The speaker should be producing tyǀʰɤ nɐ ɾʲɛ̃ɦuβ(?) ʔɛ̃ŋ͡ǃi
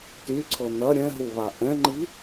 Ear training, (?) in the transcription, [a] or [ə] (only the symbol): a